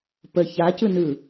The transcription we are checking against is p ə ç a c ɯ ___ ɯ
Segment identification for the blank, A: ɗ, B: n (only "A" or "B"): B